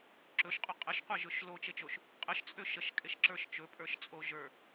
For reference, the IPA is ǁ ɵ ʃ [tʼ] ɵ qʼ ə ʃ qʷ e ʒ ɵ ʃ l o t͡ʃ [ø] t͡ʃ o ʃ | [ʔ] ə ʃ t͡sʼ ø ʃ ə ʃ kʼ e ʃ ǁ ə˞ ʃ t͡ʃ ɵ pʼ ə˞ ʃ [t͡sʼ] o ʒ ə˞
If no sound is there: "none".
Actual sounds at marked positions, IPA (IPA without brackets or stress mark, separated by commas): qʼ, e, qʼ, t͡sʼ